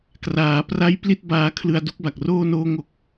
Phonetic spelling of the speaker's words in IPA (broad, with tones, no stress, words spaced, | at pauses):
kraː˩˦pra˦˥j pli˥˩t̚ baː˧kʰlɯ˧a̯ du˦˥k̚ba˨˩k̚roː˥˩ noː˥˩ŋo˥˩k̚